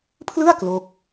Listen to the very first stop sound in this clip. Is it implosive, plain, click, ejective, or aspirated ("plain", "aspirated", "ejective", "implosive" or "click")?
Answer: aspirated